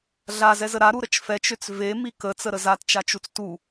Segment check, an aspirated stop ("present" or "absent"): absent